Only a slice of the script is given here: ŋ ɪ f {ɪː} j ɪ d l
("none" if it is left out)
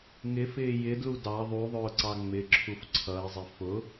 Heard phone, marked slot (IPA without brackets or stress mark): ɪː